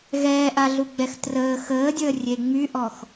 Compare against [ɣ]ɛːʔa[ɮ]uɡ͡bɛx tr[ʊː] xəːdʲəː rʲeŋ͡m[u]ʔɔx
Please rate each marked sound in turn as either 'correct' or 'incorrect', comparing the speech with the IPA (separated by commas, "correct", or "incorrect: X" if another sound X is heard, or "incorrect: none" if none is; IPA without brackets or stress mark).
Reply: correct, correct, incorrect: əː, incorrect: y